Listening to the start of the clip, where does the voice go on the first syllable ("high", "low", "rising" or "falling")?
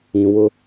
low